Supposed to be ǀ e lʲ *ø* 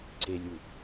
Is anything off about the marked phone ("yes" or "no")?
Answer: yes